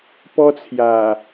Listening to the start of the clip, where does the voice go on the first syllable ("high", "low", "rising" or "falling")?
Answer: high